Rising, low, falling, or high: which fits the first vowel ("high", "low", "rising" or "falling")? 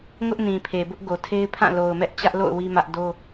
high